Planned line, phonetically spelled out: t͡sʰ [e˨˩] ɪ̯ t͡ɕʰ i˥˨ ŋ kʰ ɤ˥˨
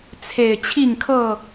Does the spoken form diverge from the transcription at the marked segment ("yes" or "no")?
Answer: no